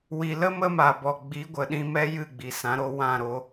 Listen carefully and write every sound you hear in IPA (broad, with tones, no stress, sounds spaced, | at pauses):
w i˨ l ə˦ m ə˦ m a˨ b ɔ˨ ɡ͡b i˨˦ ɡʷ ə˨ ɗ ĩ˧ m ɛ˦ j ɨ˦˨ ɡ͡b i˨ s ã˨˦ ɾ o˧ w ã˦˨ ɾ o˧